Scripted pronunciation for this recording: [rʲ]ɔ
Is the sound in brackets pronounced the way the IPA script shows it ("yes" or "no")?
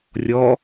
yes